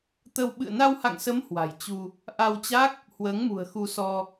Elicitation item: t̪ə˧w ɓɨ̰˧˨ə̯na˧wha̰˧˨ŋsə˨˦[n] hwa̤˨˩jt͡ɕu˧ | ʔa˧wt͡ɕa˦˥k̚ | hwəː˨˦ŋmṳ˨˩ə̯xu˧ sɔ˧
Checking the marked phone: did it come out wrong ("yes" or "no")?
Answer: yes